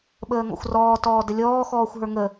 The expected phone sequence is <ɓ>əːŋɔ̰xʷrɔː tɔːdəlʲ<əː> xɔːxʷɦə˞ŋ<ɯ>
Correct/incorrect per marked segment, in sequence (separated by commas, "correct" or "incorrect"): correct, incorrect, incorrect